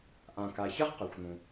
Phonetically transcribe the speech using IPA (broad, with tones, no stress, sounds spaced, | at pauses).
ʔ ã˩ k a˩ ç ɐ˥ ʁ q ɐ˩ xʷ n̪ ũ˩